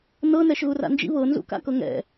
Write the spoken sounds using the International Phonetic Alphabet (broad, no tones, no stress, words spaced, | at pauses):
nɤnɛʃ ɣura̰nd͡ʒḭ βɤnzṵ ka̰kɤŋɛ̰